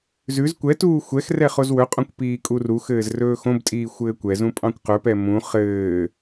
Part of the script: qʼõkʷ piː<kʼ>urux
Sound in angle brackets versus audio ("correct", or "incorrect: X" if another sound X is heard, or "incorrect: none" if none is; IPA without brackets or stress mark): correct